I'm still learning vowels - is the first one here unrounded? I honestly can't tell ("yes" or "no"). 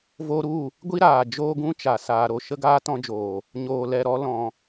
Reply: no